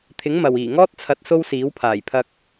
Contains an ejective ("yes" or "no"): no